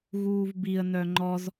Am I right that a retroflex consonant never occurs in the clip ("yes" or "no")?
yes